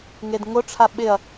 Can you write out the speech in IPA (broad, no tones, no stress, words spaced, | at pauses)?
ŋedŋʊʈ͡ʂʰa ɓɪɐ̯